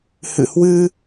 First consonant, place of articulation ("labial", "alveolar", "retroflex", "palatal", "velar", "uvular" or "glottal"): glottal